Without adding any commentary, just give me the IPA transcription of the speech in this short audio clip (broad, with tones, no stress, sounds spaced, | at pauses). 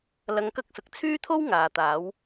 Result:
l ɐ˧ ŋ k ɐ˥ k̚ s ʊ˨ k̚ t͡sʰ yː˥ t̪ʰ o˥ w ŋ aː˨˧ t̪ aː˨˥ w